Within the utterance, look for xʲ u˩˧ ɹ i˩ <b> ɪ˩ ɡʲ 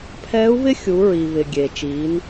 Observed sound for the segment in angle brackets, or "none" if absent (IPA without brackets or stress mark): β